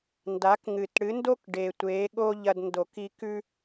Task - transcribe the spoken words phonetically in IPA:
n d a˨˦ k ŋ ɨ˨˩ t ɽ ɨ˨˦ n d o˦ k ɖ e˨˩ tʷ eː˨˦ ɠ o˦ ʎ ɐ˦ d n d o˧˩˧ k i˦ k ʉ˦

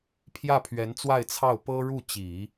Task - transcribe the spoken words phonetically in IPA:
pʰ j ä˥˩ pʰ ɥ ɛ˧˥ n t͡s w a˥˧ ɪ̯ t͡sʰ ɑ˥˩ ʊ̯ p ɤ˥ ɻ u˥˩ t͡ɕ i˨˩˦

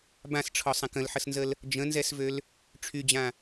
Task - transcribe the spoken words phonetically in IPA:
b ã s ʈ͡ʂʰ ɔ sˤ ã k ə̃ l ħ ə s n z ə l | d͡ʒ ə̃ n z ɛ s v ø l | ʈ͡ʂʰ y d͡ʑ ã

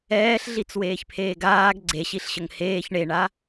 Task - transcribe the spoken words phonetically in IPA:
ɛː ɬ ɮ i t͡s w eː ç pʰ eː ɡ aː ɡ ɡ͡ǀ e ɕ i ɬ ɕ ə ŋ h eː ç ɳ e ɳ a

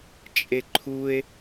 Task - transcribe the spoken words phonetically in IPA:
t͡ʃʼ e ǃʰ u e̯

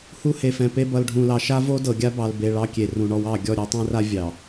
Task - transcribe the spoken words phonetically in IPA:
h u˦ h e˨ f ɛ̃˨ p e˦ b ʌ˨ l ɖʱ ũ˨ l ɑ˨ ʃ a˦ v o˦ d ɤ˨ ɡʲ a˦ b ɑ˨ l b e˨ ɭ ɑ˦ kʲ e˨ r ũ˨ ɳ ɔ˦ w ɑ˦˨ ɡʲ ɔ˦˨ ɾʲ ɛ˨˦ tˤ ɛ̃˦ r a˦ vʲ ɑ˨

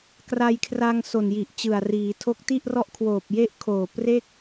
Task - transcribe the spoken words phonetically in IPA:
k r a˧ j kʰ r a˧ ŋ s o˨˩ n j i˨˩ ʔ t͡ɕ ɯ˨˩ a̯ r iː˩˦ tʰ o˦˥ k̚ t i˥˩ ʔ r ɔ˥˩ ʔ kʰ w oː˨˩ p̚ j e˥˩ ʔ kʰ oː˨˩ p r e˥˩ k̚

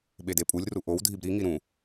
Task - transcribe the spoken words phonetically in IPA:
ɓ e d e pʼ u lʲ r u ʔ o w dʱ i b ɾ i ŋ i ɾ ũ

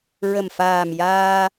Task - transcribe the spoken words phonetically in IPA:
ɹ ə˨˩ m f aː˨˩ m j aː˧

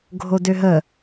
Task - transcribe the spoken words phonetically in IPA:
ɡʱ o d ø ɦ ə

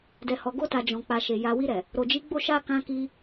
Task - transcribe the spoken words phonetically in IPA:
d ɛ˨ h ɔ˨ ɡ o˧ t a˨ d͡ʒ ɔ̃˨ k͡p a˨ ʃ e˨ j a˨ w i˧ ɾ ɛ˨ | ɾ o˨ d͡ʒ i˨˦ ɡ͡b o˦˨ ʃ a˧ k ã˧ k i˧

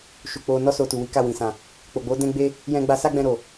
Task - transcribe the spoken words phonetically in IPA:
ʃ u˨ k͡p o˧ n ɔ˦ s o˧ t u˨ w i˨˦ k a˦˨ w ĩ˨ s ã˨ | k͡p o˨ ɡ͡b o˨˦ d ɛ̃˦ ɡ͡b e˦ | j ɛ̃˦ ɡ͡b a˦ s a˦ ɡ͡b ɛ̃˧ ɾ o˨

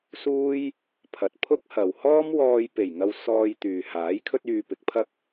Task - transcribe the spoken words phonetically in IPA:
s uː˥ j | pʰ ɐ˨ t̚ pʰ ʊ˥ k̚ h ɐ˨ w h ɔː˥ m w ɔː˧ j p e˨˩ j ŋ ɐ˧ w s ɔː˧ j t̪ yː˨ h aː˨˥ j kʰ ɵ˥ t̚ yː˧ p ɪ˨˥ k̚ pʰ ɐ˥ k̚

